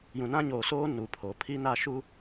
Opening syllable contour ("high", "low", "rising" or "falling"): low